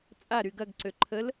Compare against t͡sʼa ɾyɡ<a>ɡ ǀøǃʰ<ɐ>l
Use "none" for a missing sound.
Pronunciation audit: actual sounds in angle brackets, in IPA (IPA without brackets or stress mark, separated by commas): ɐ, ə